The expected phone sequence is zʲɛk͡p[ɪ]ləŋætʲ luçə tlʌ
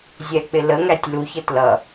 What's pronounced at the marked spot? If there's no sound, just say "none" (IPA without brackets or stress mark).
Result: ɪ